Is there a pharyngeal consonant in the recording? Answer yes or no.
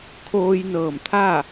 no